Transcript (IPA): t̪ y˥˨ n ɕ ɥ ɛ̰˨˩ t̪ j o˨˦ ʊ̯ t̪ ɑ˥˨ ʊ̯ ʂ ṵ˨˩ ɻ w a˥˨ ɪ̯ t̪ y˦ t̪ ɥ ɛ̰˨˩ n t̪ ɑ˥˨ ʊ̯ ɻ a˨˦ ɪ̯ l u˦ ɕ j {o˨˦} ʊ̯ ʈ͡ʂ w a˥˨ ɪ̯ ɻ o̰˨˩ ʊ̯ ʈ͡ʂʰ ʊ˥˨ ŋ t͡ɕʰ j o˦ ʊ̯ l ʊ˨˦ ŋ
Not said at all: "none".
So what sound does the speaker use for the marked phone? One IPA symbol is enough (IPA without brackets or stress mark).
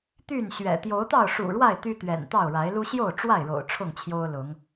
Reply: o˥˨